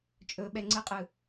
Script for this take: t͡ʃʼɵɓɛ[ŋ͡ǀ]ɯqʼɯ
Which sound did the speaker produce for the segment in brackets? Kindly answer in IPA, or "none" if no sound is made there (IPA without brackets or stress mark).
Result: ŋ͡ǀ